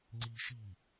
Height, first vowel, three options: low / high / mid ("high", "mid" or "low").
high